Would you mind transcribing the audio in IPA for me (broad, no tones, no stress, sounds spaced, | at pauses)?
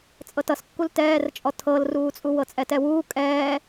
t͡sʼ ɤ t ʌ s kː u l t ɛː r t͡ʃʼ ɔ tʰ ɤ l r uː t͡sʼ u w ɤ t͡sʼ ɛ t ɛ w uː kʼ ɛː